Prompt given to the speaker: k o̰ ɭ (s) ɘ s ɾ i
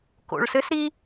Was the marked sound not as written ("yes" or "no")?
no